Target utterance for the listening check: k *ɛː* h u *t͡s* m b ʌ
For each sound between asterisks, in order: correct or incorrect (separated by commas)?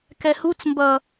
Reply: incorrect, correct